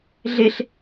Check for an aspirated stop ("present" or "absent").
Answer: absent